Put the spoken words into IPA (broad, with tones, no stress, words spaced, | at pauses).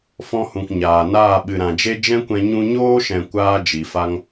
fɔ̃˧hũ˨k ɲaː˨naː˦˨ ɓɨ˨ɾã˨d͡ʒe˦ d͡ʒɛ̃˦kʷɛ̃˧ ɲũ˧ɲoː˦ʃɛ̃˨ kʷaː˦d͡ʒi˨fa˦ŋ